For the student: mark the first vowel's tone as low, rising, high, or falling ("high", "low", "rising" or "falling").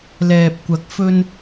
low